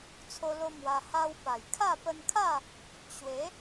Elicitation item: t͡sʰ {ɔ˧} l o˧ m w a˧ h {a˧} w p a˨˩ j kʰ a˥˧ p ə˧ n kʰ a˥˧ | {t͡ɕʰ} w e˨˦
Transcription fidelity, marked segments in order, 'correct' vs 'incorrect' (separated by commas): incorrect, incorrect, incorrect